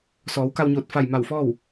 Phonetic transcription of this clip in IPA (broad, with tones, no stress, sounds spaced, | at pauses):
s ɔː˩˧ w k a˧ w ɲ oː˧˩ t̚ f a˧˩ j m a˧˩ w f ɔː˥˨ w